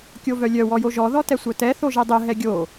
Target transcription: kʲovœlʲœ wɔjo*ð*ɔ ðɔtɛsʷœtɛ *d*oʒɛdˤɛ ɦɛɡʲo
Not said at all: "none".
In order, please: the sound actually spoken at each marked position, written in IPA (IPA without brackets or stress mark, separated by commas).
ʒ, θ